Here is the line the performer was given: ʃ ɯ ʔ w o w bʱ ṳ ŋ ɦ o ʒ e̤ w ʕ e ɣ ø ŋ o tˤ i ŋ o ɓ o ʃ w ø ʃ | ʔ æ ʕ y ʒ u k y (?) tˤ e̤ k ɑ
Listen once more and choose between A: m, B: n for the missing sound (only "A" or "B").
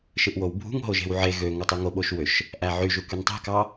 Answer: B